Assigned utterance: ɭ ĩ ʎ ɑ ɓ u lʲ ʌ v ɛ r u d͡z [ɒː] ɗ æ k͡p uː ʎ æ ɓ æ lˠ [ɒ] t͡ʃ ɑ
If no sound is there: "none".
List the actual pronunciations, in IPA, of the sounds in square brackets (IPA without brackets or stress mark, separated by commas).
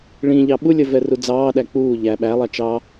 ɑː, ɑ